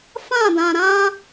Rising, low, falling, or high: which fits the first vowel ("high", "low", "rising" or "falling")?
falling